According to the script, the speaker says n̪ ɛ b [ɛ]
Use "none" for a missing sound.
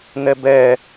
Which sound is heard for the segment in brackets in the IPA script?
ɛ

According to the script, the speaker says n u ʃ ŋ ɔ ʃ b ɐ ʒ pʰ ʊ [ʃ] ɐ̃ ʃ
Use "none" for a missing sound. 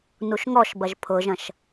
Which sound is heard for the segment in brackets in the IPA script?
ʒ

